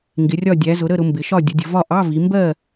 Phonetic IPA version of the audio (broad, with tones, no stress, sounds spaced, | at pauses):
ŋ ɡ ɪ˩˧ rʲ ɒ˥˨ dʲ æ˩˧ z ʊ˩˧ ɾ ə˥˨ ɾ ʊ˩˧ m b ɪ˩˧ ʃ ɒ˥˨ dʲ ə˩˧ dʲ ə˩˧ v ɒ˥˨ ʔ ɑ˧˥˧ v i˩˧ m b ɜ˥˨